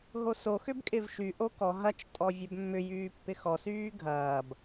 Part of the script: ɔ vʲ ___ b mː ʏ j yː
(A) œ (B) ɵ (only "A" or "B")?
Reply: A